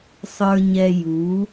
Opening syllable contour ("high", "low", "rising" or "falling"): low